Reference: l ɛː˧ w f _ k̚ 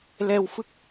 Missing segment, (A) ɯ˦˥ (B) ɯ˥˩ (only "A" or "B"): A